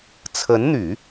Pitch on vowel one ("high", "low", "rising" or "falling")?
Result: rising